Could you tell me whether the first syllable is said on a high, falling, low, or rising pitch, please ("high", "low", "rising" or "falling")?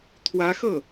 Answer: rising